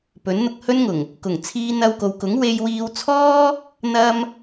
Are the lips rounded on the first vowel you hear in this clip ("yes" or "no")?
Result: yes